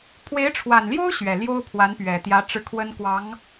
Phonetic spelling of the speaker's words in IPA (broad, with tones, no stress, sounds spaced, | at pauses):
pʰ w e˧˥ ɪ̯ ʈ͡ʂʰ w a˨˩ n l j o˥ ʊ̯ ɕ ɥ ɛ˨˩ l j o˥ ʊ̯ pʰ w a˧˥ n p ɥ ɛ˨˩ t̪ j ä˧˥ ʈ͡ʂ ɻ̩˥˩ kʰ w ə˥ n k w ɑ˧˥ ŋ